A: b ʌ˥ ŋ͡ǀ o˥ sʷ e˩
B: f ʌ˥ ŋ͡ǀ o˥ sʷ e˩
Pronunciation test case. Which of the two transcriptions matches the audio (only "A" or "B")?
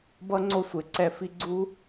A